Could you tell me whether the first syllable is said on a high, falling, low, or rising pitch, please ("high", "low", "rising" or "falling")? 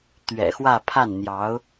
low